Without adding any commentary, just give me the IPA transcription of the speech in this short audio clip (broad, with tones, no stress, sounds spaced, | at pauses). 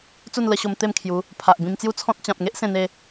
t͡s u˥˧ n l ə˧ ɕ o˧ m t̪ e˥˧ m kʰ j u˨˦ | pʰ a˨ ʔ b ĩ˧ m t͡s j u˥˧ t͡sʰ ɔ̃˦ t̚ t͡ɕ ã˨ p̚ ŋ e˦ ʔ s ẽ˧ n e˧